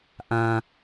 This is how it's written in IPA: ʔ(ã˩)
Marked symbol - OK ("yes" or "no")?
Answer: yes